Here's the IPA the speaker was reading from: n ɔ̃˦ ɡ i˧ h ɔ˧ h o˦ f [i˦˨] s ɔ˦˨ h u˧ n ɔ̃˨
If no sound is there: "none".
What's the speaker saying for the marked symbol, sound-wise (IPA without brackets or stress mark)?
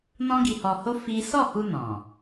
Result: i˦